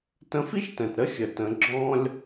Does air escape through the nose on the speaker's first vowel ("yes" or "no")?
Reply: yes